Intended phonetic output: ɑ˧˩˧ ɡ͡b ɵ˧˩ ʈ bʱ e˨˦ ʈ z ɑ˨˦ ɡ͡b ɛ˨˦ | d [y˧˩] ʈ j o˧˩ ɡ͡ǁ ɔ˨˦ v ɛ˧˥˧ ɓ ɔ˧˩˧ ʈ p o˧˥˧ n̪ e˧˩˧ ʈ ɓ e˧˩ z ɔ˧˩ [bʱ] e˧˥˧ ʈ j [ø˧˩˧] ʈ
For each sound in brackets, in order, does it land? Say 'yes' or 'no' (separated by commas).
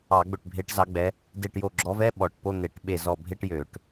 no, yes, yes